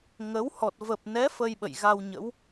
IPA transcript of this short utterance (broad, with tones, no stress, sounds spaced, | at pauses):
ŋ ə˨˦ w h ɔ˨˩ t̚ v ə˨˩ p̚ n ɛ˨˦ f ə˧ j ɓ ə̰˧˨ j ɣ a˧ w ɲ ə̰˧˥ w